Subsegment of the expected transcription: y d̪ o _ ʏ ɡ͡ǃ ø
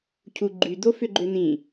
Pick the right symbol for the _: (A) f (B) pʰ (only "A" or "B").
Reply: A